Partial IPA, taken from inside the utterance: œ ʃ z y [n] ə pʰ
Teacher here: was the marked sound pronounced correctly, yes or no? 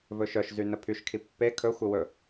yes